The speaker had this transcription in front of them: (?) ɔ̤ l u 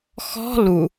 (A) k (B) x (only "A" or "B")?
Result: B